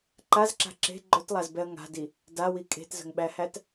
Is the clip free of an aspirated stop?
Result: yes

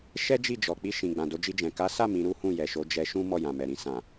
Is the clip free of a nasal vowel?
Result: no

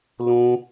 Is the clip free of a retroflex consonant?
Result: yes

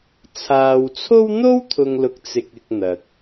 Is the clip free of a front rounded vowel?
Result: yes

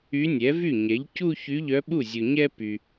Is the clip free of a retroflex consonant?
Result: yes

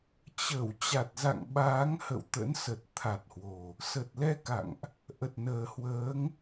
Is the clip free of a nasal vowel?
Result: yes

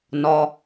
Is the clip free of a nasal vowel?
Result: yes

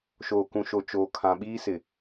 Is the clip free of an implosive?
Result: no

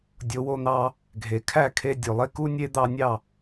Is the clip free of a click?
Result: yes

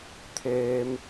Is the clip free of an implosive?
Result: yes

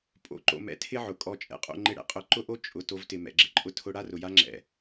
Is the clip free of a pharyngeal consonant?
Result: no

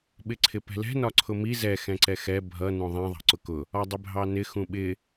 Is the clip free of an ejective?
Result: yes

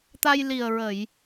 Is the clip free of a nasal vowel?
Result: yes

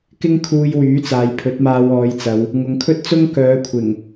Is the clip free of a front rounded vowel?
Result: no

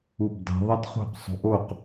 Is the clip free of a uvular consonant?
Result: no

